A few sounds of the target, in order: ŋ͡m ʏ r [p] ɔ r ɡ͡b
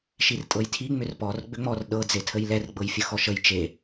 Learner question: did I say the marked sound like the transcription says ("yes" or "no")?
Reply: yes